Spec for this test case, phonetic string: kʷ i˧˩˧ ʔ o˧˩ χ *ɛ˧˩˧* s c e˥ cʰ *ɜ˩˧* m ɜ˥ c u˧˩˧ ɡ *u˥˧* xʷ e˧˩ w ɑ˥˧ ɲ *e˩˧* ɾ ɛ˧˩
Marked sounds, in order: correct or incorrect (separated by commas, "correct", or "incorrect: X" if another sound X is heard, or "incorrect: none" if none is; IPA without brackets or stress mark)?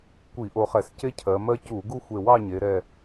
correct, correct, correct, correct